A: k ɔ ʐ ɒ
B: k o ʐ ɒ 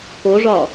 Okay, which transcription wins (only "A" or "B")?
B